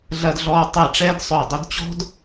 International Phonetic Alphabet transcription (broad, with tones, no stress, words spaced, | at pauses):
ɮɐ˧dɮɔː˧ tˤɛ˧˩ ʈ͡ʂɛː˥dsˤœ˧˩dˤʏ˥d t͡ɕɔ̤˥d